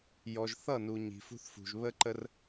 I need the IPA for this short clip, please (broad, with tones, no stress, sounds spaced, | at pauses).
j ɔ˨ ʒ θ ʌ˦˨ n u˨ ɲ i̤˨ f ṳ˦ θ f ṳ˨ ʒ β ə˦ ǃ ə˦ r